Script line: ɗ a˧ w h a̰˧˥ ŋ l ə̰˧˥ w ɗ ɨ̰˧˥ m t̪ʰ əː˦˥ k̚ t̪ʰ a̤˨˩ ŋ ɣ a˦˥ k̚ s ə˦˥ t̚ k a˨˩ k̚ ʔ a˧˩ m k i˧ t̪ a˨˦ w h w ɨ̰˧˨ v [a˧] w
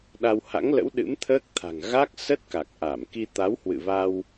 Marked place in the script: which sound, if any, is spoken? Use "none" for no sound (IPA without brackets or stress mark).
a˧